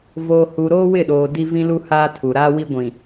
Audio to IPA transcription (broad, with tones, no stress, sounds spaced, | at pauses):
v o˨ h u˨ ɾ oː˦ w ɪ˦˨ ɗ oː˨ d i˦ v ĩ˦ l u˦ h aː˦ tʰ u˨ ɾ aː˦ w i˦ ɡʷ ĩ˨